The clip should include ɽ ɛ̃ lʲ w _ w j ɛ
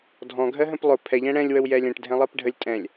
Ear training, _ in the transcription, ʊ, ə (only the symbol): ə